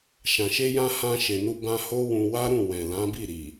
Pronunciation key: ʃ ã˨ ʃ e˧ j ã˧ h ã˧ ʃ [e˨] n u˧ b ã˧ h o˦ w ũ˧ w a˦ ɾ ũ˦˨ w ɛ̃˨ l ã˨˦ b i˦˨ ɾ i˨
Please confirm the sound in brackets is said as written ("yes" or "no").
yes